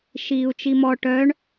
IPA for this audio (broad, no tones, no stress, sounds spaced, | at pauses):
ʃ iː u̯ t͡ʃ i m ɔ ʈ œ ɳ